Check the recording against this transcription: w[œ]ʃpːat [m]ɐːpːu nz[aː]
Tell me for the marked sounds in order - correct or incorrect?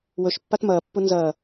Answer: incorrect: ɵ, correct, incorrect: ɐː

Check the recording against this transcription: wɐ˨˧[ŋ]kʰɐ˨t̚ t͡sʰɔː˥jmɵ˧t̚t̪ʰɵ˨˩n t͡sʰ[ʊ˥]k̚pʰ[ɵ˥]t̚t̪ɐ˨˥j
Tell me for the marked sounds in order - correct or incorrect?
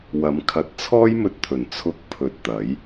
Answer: incorrect: m, incorrect: ʊ˧, incorrect: ɵ˨

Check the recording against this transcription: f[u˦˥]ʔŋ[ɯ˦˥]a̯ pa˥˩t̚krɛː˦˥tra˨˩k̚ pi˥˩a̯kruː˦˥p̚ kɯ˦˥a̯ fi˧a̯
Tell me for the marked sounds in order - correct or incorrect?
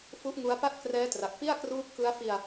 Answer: correct, incorrect: u˦˥

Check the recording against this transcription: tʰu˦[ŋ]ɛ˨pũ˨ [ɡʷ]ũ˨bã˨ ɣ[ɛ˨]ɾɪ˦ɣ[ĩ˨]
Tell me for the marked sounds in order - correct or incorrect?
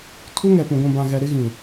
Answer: correct, correct, correct, correct

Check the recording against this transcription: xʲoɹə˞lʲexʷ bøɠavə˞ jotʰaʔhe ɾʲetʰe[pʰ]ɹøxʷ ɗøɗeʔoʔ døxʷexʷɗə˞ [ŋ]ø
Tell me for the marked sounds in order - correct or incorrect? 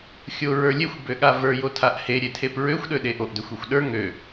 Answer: incorrect: p, correct

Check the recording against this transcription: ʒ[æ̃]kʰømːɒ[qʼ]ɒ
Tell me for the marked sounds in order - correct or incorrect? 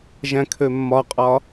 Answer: correct, correct

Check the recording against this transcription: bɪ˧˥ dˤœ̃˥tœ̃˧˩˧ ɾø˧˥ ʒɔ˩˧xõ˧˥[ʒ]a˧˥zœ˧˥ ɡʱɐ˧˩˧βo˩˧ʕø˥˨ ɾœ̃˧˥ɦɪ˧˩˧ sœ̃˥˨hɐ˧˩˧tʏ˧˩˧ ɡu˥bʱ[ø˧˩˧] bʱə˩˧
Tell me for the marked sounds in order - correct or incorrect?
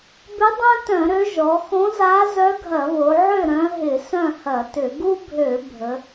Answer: incorrect: z, correct

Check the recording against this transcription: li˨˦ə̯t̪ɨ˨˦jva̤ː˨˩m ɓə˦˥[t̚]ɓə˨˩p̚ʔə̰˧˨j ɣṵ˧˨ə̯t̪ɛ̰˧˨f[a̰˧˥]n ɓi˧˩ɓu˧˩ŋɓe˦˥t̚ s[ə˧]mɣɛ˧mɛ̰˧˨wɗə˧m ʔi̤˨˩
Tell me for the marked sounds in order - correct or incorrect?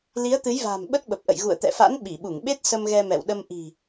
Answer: correct, correct, correct

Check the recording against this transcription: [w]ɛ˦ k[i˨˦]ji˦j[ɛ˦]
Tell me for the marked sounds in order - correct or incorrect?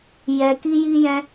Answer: incorrect: j, incorrect: i˦, incorrect: ɛ̃˦

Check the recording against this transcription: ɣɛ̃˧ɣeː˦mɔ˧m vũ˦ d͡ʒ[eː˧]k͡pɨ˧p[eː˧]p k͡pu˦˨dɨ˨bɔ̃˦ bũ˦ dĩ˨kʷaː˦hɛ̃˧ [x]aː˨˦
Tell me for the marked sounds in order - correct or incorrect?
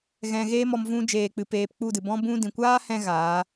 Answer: correct, correct, incorrect: ɣ

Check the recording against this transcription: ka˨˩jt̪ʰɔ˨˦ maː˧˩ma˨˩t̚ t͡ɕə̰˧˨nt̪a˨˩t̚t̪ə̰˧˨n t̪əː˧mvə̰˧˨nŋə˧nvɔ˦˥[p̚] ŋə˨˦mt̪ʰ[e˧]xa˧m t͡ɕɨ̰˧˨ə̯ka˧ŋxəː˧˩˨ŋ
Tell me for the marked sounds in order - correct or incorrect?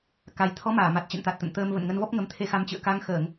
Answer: correct, correct

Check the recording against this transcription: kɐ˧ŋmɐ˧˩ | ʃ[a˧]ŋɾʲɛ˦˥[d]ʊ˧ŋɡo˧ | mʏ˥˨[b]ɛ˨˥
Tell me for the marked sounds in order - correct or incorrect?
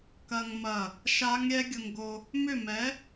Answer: incorrect: a˦˥, incorrect: ɡʲ, incorrect: m

